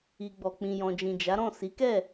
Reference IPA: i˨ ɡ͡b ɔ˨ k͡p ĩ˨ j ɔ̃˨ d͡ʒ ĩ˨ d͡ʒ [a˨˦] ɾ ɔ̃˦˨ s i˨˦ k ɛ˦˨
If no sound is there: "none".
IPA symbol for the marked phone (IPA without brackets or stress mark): a˨˦